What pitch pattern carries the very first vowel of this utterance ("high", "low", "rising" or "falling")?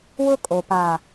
high